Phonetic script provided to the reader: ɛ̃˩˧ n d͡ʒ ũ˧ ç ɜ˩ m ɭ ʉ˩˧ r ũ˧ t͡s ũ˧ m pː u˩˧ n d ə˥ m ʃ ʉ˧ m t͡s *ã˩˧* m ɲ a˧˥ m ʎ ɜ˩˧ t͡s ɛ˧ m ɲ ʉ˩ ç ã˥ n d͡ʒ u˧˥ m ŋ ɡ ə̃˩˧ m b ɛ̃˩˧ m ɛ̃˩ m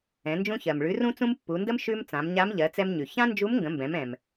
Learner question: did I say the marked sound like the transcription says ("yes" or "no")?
yes